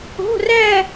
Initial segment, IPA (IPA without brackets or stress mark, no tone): o̤